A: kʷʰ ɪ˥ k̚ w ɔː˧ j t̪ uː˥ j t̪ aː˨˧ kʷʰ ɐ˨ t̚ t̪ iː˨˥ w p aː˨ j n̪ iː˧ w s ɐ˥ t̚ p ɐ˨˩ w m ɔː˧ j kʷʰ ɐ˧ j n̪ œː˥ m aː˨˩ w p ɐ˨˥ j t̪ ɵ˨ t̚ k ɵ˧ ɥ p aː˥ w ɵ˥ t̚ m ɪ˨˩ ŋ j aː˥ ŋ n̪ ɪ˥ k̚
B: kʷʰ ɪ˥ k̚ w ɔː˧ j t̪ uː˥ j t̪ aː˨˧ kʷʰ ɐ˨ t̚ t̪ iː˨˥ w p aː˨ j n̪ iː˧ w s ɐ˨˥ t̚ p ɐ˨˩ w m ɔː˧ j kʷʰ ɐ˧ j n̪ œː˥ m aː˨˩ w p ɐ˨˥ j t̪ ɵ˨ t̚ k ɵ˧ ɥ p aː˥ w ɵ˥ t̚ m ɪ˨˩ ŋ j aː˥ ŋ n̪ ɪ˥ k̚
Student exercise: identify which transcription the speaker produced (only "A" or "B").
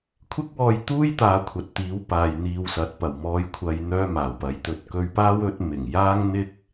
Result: B